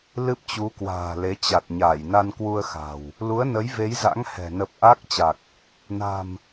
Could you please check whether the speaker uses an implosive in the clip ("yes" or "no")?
no